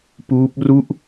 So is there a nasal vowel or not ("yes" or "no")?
no